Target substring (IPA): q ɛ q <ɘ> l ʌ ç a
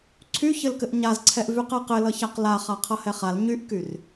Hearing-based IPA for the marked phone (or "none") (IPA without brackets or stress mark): ɘ